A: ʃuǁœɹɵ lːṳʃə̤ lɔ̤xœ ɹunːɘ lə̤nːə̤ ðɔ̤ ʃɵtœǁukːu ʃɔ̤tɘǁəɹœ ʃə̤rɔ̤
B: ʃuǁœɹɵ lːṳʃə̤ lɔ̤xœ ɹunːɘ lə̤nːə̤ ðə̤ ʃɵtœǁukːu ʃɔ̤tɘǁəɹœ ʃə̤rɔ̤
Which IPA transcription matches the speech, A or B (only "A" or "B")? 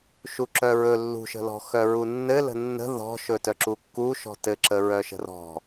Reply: A